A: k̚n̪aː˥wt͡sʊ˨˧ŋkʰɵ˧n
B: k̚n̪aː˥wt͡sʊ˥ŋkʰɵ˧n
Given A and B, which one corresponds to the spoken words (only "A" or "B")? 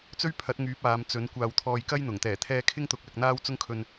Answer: B